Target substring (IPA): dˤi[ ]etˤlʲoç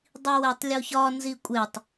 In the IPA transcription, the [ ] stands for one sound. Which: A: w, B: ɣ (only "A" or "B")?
A